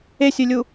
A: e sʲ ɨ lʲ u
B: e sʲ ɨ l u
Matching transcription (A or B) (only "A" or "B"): A